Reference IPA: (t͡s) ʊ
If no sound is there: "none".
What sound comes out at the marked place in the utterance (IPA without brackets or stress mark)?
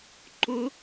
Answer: ǃ